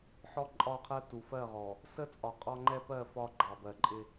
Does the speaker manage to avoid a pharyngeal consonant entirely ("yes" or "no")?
no